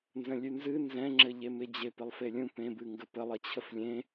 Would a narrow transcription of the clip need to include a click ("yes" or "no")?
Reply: yes